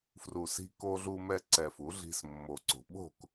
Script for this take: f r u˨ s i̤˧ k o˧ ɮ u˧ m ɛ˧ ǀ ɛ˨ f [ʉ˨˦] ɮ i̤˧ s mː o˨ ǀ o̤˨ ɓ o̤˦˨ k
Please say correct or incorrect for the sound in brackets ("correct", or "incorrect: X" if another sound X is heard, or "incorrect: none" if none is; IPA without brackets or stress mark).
incorrect: u˨˦